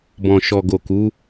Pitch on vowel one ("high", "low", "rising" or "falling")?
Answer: low